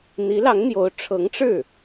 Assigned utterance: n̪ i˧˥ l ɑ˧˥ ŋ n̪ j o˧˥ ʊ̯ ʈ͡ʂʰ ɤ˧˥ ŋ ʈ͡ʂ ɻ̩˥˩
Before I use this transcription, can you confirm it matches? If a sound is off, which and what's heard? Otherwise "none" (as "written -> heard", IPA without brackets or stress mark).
none